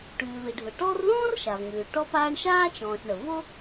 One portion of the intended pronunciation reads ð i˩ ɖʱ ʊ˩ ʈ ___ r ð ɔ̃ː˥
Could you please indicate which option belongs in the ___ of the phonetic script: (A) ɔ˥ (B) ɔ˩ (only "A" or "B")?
A